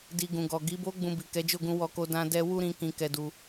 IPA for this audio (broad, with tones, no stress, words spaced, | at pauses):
di˨ ɡũ˨ɡɔ˨ ɡi˨˦bo˦ ɡ͡bũ˧bi˨kɛ˨˦d͡ʒo˦˨ ɡũ˧wɔ˧ko˧ dã˧dɛ˧ wu˦ɾĩ˧ kĩ˧kɛ˧du˧